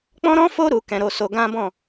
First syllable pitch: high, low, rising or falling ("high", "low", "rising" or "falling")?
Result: high